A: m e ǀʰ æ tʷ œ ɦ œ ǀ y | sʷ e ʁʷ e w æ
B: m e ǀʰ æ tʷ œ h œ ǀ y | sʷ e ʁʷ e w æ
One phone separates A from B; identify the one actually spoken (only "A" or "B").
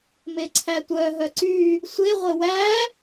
A